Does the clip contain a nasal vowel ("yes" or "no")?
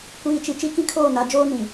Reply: yes